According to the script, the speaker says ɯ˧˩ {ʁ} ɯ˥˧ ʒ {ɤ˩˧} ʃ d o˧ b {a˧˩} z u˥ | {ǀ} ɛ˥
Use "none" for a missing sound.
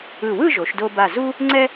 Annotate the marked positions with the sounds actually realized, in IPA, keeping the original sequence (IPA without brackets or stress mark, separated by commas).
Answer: w, o˩˧, a˧˩, ŋ͡ǀ